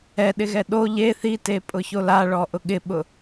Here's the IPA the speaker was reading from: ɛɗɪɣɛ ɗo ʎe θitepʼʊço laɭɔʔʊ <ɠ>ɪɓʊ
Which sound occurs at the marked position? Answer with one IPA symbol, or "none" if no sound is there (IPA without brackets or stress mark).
ɠ